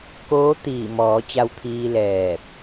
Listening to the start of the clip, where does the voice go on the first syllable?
rising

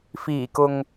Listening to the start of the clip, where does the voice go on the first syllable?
low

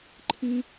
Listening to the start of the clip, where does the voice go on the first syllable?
high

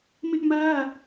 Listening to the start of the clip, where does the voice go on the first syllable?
high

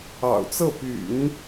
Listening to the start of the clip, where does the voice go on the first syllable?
low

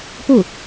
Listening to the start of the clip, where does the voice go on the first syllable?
falling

